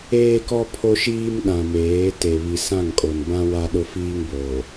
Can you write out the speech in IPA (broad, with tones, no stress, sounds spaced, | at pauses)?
eː˦ k ɔ˦ pʰ o˦ ʃ iː˦ m ɗ ã˨ m eː˨˦ t e˨ β i˨ s ã˦˨ ŋ kʼ o˨ n b ã˦ w a˦ ɗ ʊ˦ f iː˦ ŋ b oː˨